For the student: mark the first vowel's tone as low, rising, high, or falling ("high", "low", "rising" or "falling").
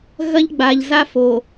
high